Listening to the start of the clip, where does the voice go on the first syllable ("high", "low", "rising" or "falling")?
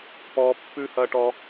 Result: high